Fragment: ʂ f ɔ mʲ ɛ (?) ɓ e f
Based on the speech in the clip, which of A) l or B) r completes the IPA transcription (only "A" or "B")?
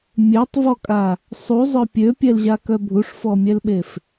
A